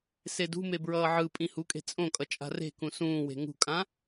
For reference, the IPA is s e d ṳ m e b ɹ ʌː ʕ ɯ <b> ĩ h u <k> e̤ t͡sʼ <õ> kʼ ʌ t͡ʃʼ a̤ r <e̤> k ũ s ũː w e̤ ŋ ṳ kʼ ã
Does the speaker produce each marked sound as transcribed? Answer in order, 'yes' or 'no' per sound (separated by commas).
no, no, yes, yes